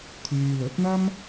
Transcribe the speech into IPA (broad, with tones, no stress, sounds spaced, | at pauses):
t̪ʰ yː˧ l ɵ˨˥ t̚ n̪ ɐ˥ m